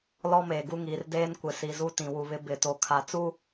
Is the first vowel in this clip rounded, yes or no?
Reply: yes